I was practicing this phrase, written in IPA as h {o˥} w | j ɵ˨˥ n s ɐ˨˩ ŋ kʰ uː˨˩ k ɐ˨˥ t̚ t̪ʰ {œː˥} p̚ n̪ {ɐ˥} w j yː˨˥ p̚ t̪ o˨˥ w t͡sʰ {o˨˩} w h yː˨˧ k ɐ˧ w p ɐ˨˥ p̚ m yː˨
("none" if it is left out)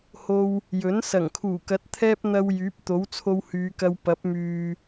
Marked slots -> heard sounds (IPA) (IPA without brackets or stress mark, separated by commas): o˧, ɛː˥, ɐ˧, o˧